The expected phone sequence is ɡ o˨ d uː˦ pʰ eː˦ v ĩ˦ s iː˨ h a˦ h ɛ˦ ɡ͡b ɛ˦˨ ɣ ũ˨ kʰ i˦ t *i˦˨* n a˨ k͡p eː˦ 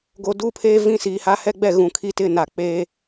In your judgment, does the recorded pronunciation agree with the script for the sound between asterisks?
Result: no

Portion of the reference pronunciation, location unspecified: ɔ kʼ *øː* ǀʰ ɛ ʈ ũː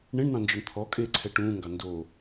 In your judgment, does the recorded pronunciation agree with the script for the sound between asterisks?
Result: no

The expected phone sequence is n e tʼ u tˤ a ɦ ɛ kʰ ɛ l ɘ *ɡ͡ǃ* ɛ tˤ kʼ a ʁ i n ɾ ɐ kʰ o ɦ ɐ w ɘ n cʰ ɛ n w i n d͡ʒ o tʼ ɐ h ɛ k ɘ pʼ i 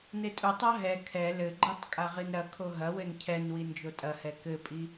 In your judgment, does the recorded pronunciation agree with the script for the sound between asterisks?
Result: yes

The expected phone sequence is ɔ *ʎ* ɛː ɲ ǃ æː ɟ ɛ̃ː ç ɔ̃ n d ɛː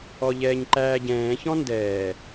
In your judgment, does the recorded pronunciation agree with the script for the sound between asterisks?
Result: yes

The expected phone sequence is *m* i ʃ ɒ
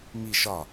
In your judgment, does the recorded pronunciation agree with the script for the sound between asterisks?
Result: yes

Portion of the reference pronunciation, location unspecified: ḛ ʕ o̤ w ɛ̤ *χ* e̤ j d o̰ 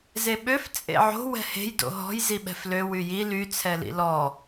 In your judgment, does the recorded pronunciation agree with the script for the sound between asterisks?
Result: no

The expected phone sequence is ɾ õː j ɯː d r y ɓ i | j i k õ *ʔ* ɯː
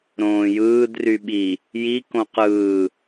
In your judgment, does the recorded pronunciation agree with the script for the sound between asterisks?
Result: no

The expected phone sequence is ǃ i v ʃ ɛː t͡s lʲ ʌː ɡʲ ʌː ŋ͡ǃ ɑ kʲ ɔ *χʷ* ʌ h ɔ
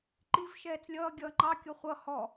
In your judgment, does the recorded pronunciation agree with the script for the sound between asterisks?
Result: yes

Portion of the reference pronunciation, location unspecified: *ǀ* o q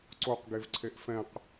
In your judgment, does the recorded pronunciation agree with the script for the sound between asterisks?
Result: yes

